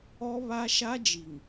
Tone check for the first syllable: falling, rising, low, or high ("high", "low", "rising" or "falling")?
high